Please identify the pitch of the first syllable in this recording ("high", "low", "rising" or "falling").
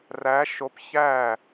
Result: rising